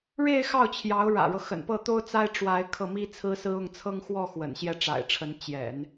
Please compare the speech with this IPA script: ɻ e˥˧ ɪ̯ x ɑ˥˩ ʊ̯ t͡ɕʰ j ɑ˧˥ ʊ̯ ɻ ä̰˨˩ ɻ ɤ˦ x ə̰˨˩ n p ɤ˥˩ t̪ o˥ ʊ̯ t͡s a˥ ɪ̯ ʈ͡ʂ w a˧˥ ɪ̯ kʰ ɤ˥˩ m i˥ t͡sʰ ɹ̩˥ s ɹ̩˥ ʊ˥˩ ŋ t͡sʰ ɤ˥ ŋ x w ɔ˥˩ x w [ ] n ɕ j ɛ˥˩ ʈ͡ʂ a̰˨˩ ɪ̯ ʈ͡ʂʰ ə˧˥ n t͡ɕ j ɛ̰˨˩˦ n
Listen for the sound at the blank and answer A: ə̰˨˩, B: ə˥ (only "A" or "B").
A